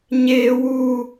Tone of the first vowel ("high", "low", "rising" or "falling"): high